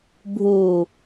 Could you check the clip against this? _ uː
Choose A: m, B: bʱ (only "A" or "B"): B